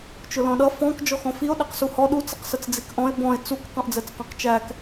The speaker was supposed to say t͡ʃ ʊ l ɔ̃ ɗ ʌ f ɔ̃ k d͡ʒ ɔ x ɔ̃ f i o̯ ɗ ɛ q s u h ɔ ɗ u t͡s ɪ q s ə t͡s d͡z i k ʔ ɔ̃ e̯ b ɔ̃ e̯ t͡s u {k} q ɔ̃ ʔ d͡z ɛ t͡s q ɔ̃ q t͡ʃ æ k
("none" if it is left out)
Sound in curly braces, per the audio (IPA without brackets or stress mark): k